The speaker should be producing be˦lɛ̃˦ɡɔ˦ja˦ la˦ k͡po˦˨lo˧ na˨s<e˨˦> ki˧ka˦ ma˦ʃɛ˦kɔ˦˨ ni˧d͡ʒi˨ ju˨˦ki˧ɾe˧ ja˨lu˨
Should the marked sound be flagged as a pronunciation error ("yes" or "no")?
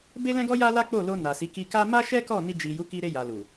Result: yes